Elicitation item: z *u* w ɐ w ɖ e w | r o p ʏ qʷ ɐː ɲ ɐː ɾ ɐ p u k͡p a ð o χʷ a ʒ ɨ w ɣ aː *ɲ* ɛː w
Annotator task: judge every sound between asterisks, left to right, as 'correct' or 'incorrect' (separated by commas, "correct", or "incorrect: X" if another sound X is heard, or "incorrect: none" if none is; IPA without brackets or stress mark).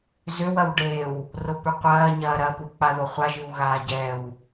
incorrect: ʏ, incorrect: ɟ